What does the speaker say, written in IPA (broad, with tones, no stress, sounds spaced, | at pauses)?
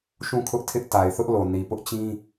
ʃ ũ˦˨ kʰ ʊ˦ ʔ tʰ ɪ˦ ʔ t a˨ ɪ̯ θ ʊ˦ ʔ l o˨ n i˨ p ʊ˦ ʔ t͡ɕ ĩ˦